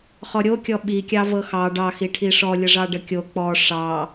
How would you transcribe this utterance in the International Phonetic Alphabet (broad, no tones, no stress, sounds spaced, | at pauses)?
χ ɔ ɾʲ o kʲ ɔ ɓ i kʲ ɑ v ɤ x ɑ ɖ ɑ x i ʈʰ i ʂ ɔ lʲ ə ʐ ɑ ɖ ə kʲ o k͡p ɔ ʂ ɑ